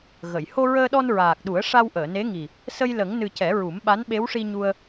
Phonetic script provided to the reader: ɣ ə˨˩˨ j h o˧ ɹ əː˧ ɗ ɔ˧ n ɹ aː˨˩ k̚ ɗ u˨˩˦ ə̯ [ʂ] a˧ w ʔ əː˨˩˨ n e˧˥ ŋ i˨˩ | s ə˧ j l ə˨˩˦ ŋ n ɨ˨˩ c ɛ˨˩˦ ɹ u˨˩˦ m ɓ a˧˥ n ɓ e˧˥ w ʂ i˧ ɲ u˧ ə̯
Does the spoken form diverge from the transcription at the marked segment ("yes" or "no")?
no